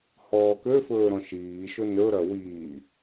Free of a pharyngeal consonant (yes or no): yes